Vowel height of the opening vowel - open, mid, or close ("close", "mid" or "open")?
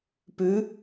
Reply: close